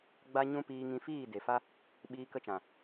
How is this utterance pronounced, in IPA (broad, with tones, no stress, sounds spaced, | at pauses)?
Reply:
ɡ͡b a˦ ɲ ũ˦ p iː˧ ŋ ĩ˧ f iː˦˨ d e˨ f a˦ | ɓ iː˧ k ə˧ t͡ʃ ã˨